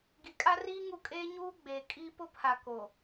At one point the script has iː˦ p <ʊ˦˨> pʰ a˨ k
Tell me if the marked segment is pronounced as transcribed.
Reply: no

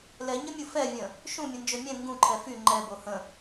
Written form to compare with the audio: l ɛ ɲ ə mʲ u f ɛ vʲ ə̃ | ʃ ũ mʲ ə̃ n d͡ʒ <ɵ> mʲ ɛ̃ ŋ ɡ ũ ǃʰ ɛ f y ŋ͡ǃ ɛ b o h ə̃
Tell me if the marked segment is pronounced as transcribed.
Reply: no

